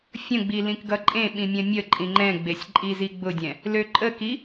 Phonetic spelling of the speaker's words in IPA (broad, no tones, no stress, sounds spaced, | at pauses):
fʲ ə̃ ɡ͡b i l ĩ k ɡ ʌ ǃʼ ẽ ɓ ĩ mʲ ɛ̃ mʲ ə ǃʼ ĩ ŋ͡ǃ ɛ̃ ɡ͡b e sʲ ǃʼ i z i ɡ͡b ʊ dʲ ɛ̃ | l ø ǃʼ ə k i